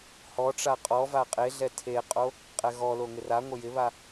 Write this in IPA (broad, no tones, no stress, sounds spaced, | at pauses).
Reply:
h ɔ ʈ͡ʂ a qʼ ɔ v a qʼ e ɮ ɛ tʰ e qʼ o | qʼ ɛ ɣ ɔ l o ŋ ɪ r a ŋʷ ɪ j ɪ β a